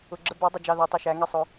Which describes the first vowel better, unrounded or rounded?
rounded